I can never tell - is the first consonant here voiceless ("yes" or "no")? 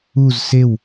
no